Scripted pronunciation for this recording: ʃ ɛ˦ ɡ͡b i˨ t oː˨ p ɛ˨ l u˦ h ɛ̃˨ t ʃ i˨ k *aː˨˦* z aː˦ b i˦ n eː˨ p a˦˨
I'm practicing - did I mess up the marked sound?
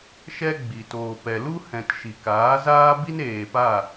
no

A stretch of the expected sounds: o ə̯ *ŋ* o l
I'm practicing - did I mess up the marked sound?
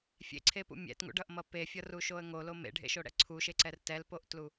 no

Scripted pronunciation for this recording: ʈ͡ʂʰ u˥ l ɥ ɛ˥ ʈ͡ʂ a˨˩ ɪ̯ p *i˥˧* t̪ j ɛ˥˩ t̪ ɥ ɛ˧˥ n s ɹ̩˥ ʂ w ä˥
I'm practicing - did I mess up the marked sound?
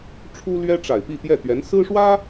no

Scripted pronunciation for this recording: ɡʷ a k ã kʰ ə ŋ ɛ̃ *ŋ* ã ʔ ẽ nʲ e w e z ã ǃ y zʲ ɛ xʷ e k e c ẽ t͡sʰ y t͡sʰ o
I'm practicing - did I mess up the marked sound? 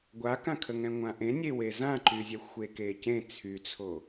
yes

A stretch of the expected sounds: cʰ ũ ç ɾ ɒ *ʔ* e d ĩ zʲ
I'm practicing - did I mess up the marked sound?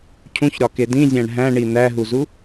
yes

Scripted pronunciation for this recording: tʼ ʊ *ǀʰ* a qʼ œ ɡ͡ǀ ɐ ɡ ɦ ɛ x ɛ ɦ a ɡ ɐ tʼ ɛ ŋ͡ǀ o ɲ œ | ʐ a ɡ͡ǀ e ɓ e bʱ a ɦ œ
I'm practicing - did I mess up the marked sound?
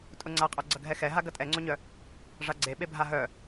yes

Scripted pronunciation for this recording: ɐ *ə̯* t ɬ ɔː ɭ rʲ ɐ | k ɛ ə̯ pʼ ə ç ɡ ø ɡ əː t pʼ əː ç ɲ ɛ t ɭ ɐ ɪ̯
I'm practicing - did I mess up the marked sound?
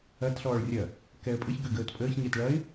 yes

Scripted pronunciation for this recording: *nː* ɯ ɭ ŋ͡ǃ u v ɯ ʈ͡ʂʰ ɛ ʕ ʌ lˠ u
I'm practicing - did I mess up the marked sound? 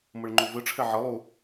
yes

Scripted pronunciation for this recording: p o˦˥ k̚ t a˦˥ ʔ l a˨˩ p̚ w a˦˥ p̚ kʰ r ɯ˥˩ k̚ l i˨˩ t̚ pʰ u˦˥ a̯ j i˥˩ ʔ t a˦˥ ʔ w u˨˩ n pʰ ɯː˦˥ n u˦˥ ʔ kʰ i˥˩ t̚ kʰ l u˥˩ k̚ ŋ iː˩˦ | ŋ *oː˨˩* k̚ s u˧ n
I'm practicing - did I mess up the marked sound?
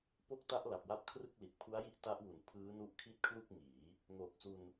no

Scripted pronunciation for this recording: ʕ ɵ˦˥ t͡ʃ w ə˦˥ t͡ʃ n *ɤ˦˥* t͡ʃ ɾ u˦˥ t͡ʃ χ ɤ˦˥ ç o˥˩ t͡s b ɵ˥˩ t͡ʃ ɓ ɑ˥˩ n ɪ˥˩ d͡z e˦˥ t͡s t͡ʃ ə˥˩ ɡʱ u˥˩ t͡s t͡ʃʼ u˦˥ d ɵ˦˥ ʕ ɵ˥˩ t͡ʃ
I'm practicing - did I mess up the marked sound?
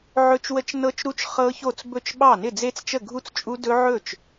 no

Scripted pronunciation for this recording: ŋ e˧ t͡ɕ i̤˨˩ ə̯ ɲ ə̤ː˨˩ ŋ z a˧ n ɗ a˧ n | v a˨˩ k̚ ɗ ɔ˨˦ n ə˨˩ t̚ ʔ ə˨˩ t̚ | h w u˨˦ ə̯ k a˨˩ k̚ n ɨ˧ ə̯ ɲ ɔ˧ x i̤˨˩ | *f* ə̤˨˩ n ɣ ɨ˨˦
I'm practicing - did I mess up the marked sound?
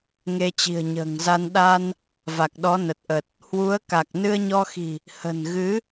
yes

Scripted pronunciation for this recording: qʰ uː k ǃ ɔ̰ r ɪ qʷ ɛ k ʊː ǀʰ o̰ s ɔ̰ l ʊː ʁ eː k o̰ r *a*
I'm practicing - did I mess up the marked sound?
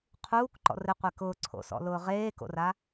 no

